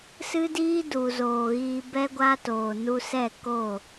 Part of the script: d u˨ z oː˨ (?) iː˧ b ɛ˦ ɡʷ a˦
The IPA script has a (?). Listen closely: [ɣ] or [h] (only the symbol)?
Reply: ɣ